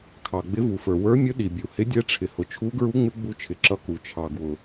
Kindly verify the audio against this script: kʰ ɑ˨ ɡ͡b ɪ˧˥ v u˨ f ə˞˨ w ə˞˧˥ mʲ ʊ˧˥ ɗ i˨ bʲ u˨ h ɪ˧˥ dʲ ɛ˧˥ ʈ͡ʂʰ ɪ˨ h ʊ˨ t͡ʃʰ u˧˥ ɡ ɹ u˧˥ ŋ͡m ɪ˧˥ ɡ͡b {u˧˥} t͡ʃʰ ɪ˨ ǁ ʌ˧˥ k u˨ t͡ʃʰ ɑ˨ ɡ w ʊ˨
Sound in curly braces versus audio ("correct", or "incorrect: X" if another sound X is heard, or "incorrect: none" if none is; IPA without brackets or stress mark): correct